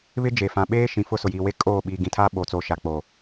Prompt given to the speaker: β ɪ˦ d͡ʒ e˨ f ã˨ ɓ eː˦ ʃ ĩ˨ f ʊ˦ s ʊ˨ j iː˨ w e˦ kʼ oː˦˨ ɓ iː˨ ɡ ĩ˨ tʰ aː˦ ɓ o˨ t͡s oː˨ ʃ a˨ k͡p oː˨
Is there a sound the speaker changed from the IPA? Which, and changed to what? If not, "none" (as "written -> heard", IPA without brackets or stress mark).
none